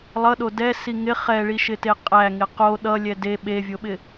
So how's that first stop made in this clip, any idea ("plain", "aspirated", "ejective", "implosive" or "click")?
implosive